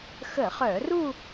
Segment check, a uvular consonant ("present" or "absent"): present